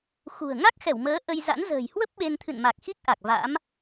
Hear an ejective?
no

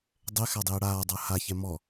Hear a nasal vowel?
no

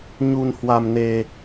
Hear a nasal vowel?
no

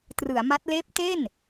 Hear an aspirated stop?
no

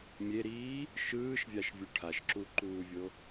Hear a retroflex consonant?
yes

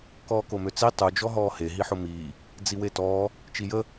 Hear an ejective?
no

